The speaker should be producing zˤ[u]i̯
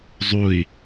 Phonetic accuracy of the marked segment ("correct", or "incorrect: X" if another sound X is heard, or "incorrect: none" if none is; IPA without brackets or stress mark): correct